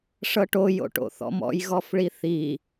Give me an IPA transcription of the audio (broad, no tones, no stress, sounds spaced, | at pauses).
ʂ ɤ ʈ o j o̰ ʈ o̰ θ ɔ̰ m ɔ̰ j ɣ ɔ f ɭ i θ i